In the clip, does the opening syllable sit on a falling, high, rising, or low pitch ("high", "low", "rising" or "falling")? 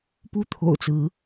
falling